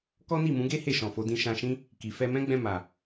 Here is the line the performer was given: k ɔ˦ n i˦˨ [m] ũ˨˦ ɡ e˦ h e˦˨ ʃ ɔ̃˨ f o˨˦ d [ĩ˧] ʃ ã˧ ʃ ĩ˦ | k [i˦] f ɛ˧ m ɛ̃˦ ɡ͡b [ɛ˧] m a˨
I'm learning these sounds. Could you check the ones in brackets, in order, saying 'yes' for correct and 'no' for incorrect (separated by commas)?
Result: yes, yes, no, no